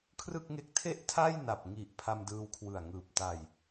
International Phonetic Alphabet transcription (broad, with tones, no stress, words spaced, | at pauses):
kʰrɯ˥˩k̚ŋe˦˥k̚ tʰe˥˩ʔtʰa˥˩j na˨˩p̚ŋi˨˩ʔ pʰa˧mdɯː˧wkʰwɯ˨˩a̯ŋɯː˨˩p̚ ta˨˩j